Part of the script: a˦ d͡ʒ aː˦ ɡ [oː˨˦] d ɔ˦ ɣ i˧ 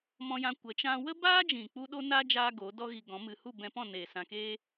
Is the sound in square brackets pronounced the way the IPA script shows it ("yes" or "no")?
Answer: yes